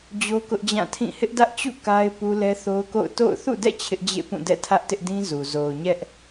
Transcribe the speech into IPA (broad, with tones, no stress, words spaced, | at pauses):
d͡ʑo˦kʊ˦ʔd͡ʑã˦˨tʰĩ˦˨ hɪ˦ʔdä˦ʔt͡ɕṵ˦˨ ka˦ɪ̯ pu˦lɛ˦θo˦ʊ̯ko̰˦˨ʊ̯ to̰˦˨ʊ̯ θṵ˦˨dɛ̰˦˨ t͡ɕʰɪ˦ʔd͡ʑḛ˦˨pũ˦˨ dɛ̰˦˨ tʰä˦ʔtɪ˦ʔdĩ˦ zu˨ zo˨ʊ̯ ɲɛ˦ʔ